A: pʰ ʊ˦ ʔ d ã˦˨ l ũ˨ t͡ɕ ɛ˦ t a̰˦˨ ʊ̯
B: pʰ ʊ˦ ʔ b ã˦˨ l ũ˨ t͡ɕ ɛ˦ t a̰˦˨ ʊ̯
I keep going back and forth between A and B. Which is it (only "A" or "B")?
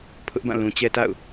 B